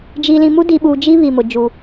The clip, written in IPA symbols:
d͡ʒ i˨ l ĩ˨ m u˦ d i˨ ɓ uː˨ d͡ʒ i˦ β i˨ m ʊ˨ d͡ʒ u˨

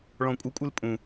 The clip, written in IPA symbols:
ɭ ɔ̃ kʷʼ ɯ kʷʼ ɨ l pʼ ũ

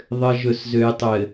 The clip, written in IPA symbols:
ðˤ ɘ˨ ʒ ɵ˨ s z ø˨ j tˤ ɘ˨

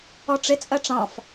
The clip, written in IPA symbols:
ɔ ʈ͡ʂ ɪ t͡sʼ ɜ ʈ͡ʂ ɑ̃ f

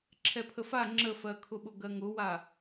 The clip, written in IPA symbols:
ǁʰ ɛ pʰ ə f a ŋ͡ǁ ə f ɜ kʰ ʊ ɓ ʊ ɡ ɜ ŋ ʊ w a

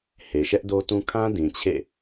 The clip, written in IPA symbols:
h e˨ ʃ ɛ˦ ʔ d o˦ t ũ˦ kʰ ã˦ d ĩ˨ t͡ɕʰ ḛ˦˨

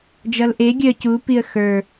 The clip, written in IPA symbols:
d͡ʒ ʌ l ʔ e ɡʲ œ ə̯ c u p i ə̯ x ə˞

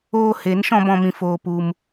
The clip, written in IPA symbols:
oː˧ h e˨˦ n ʃ ɔ̃˧ b ɔ̃˧ m ĩ˧ f oː˧ p u˧ m

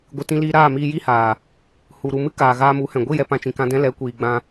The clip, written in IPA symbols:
ɡʷ ɨ˨ t ĩ˧ l iː˧ ɾ aː˦˨ m iː˧ j i˦ h aː˨ | h u˨ ɾ u˨ m ɨ˦ k aː˨ ɣ aː˧ m u˨˦ h ɛ̃˨ ɡʷ i˦˨ j ɛ˨ p ã˧ t͡ʃ ĩ˨ k ã˧ d ɛ̃˦ l ɛ˨˦ kʷ iː˨ ɡ͡b ã˧

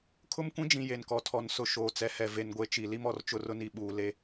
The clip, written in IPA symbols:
kʰ ʊ˦ m kʷ ĩ˦ d͡ʒ ĩ˨ j e˨ n k ɔ˨ tʰ ɔ˨ n s ʊ˨ ʃ oː˨ t͡s ɛ˨ h ɛ˨ v e˨ n ɡʷ e˨ t͡ʃ i˨ l i˦ m ɔ˨ r t͡ʃ ʊ˦ r ʊ˦ n i˨ ɓ uː˦ l e˦

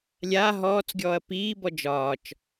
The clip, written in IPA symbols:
lʲ a ɦ ɔː t͡s ɡʲ ɔː ɐ̯ p iː b ɔ d͡ʒ ɒː t͡ʃ

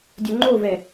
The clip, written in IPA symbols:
dʲ ɵ ŋ͡ǃ o v ɛ

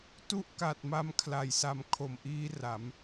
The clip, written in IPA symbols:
t u˥˩ ʔ k a˨˩ t̚ m a˧ m kʰ l a˨˩ j s a˧ m kʰ o˨˩ m ʔ iː˦˥ r a˩˦ m

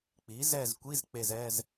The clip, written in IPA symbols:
k͡p i˩˥ z ɛ˦˨ z kʷ i˧˥˧ z k͡p e˦˨ z ɛː˧˥˧ z

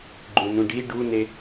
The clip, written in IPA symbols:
ɡ͡ǃ ũ n ũ ɖ i ɖ u n e

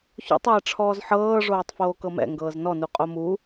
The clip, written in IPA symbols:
ç o̰ tˤ ɛː ʈ͡ʂʰ ɔː z ħ ɤː ʐ oː tˤ f oː k ɤ m ɛ̰ ŋ ɡ ɤː z n ɔ n u qʼ o m u

